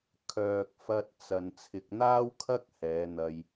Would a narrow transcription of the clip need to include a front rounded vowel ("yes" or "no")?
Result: yes